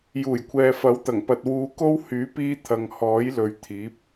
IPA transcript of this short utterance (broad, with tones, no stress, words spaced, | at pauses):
juː˨˩jkʷʰɛː˨fɐ˨˥wt̪ɐ˨˩ŋ pɐ˧t̚ wuː˨˧ ko˥w hyː˨˥piː˧ t̪ʰɐ˨ŋhɔː˨˥jlɵ˨ɥ t̪ʰiː˨˥p̚